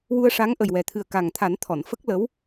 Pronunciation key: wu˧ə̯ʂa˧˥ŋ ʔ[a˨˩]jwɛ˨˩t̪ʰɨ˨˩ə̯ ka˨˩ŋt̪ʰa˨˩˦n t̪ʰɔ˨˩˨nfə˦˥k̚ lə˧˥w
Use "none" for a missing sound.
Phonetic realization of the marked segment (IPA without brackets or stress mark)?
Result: ə˨˩